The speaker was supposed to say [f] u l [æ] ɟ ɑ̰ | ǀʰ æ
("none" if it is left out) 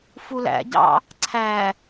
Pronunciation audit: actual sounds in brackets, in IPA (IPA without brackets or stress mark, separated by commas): f, æ̰